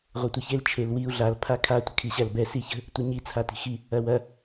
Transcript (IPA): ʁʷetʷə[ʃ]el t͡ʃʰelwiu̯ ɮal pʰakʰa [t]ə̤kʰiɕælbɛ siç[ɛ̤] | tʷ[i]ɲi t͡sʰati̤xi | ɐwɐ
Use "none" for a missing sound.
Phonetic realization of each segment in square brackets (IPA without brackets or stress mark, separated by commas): ç, tʷ, ə̤, e